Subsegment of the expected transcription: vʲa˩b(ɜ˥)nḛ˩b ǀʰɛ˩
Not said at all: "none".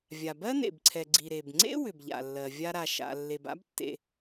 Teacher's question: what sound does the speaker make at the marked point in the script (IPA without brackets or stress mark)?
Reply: ɜ˥